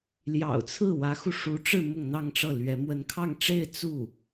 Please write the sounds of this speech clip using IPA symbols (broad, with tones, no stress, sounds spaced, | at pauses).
l j ɑ̰˨˩ ʊ̯ t͡sʰ ɹ̩˥˩ w ä˧˥ x u˧ ʂ u˧˥ ʈ͡ʂ ɻ̩˥˧ m ʊ˥˧ ŋ n̪ ɑ˥˧ ŋ ʈ͡ʂ ɤ˥˩ l ɥ ɛ˧˥ m w ə˧˥ n kʰ ɑ˥˧ ŋ ʈ͡ʂ e˥˧ ɪ̯ t͡s u˥˩